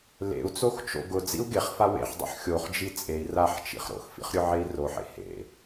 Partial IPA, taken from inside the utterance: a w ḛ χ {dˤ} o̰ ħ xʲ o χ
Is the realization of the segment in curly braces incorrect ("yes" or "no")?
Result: no